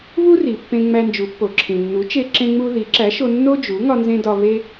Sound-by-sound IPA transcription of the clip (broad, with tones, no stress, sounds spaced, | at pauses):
β u˥ r i˩ pː ẽ˧ ŋ͡m æ˧ n d͡ʒ u˩˥ pː o˩ ǁʰ ĩ˩ nː u˩˥ t͡ʃ e˧ ǁ ẽ˧ ŋ͡m u˧ ð i˩˥ ǁ æ˩˥ ʃ o˧ nː o˥ d͡ʒ u˩˥ ŋ ɒ˧ n z ẽ˧ d ɒ˧ β e˥